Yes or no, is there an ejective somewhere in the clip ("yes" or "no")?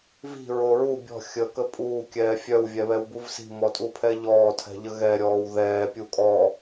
yes